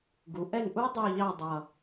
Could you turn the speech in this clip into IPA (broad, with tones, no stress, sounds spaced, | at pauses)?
ɡ u˩˧ ʔ ɛ˦˨ n ʔ u˦˥ dˤ u˦˨ ʎ ɑ˦˨ dˤ ʌ˨˩